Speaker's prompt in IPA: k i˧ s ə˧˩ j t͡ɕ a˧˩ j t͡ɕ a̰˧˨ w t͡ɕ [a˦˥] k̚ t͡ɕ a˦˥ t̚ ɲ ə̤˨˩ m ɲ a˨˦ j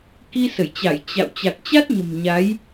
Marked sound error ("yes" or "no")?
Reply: yes